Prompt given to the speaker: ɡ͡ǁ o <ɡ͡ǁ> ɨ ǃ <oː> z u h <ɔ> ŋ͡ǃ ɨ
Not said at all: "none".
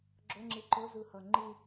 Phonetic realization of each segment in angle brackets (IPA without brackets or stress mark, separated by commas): ŋ͡ǁ, o, ɔ